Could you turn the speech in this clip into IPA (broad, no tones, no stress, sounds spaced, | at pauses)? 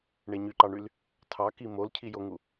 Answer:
ɳ e ɲ y ǃ ɑ ɳ y l | tʰ ɑ k i m o l cʰ i j o ŋ u